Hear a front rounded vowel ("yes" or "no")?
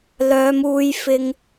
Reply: yes